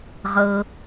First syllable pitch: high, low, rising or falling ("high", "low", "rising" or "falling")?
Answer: low